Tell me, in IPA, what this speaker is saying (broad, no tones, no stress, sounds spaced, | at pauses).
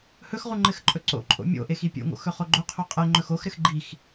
h ɵ x ʁ u ŋ͡ǃ ɘ x ǃʼ ɵ ǀ o̰ ǃʼ o̰ mʲ o̰ ʔ e x i pʲ o̰ ŋ o̰ x ɵ χ o ɡ͡ǃ o qʰ o qʼ ɛ ŋ͡ǃ ɵ x o x ɾ ɘ x ɡ͡ǃ i x